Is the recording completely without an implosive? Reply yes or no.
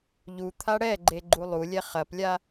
yes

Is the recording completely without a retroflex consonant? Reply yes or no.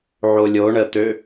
no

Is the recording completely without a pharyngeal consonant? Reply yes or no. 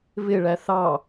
yes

